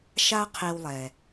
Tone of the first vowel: high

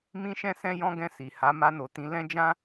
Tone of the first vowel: high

